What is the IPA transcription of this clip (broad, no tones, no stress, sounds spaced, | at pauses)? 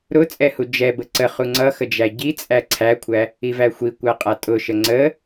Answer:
ɾ ʊ t͡sʼ ɛ h u d͡ʒ ɛ b ə ǀ ə χ u ŋ͡ǀ ʌ x ə d͡ʒ æ ɟ i t͡sʼ æ ǀʰ æ kʷʰ æ | i v æ xʷ i kʷ a qʼ a tʼ ʊ ʃ ə ŋ͡ǀ ə